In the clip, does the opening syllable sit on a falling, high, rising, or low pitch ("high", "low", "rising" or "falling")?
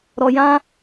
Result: low